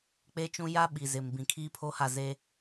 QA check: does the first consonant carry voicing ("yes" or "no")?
no